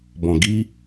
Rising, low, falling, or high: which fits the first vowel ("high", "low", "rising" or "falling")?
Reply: low